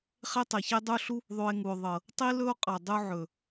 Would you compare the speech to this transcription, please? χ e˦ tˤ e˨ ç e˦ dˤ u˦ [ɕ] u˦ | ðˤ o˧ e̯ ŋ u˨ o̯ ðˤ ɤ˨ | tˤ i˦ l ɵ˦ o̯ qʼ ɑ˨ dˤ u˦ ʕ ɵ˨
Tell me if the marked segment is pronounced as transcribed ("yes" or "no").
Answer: no